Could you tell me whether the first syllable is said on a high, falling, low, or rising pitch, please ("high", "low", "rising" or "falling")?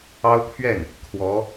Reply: high